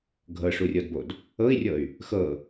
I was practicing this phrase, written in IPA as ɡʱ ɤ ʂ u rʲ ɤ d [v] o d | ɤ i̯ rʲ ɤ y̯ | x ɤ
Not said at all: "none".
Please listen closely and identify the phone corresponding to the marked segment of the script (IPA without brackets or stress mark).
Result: b